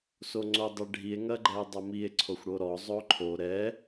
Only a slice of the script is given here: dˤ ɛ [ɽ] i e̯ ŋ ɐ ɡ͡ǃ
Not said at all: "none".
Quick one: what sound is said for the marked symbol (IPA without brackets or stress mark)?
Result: ɖʱ